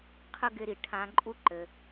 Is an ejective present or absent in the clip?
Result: present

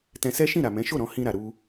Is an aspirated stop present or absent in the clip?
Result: absent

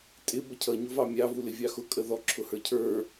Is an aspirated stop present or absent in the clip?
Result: present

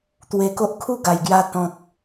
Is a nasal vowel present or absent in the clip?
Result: present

